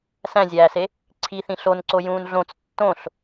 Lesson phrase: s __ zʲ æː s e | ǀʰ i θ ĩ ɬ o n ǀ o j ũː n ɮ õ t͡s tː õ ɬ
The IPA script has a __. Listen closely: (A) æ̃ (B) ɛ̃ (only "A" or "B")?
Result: A